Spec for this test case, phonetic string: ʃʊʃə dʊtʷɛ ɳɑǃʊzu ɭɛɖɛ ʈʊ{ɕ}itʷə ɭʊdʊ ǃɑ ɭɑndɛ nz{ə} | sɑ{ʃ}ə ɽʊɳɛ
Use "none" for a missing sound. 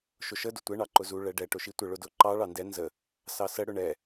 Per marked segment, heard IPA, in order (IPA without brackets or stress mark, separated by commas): ʃ, ə, s